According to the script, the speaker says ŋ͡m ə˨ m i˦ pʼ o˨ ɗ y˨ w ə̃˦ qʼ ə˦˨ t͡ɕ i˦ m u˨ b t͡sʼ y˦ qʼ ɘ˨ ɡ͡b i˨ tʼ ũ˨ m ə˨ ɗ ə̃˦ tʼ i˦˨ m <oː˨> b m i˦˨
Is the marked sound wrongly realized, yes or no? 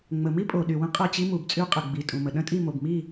yes